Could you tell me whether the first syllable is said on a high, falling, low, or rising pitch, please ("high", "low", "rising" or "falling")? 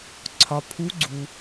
low